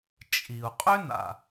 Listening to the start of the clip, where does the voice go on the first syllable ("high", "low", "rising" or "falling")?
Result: low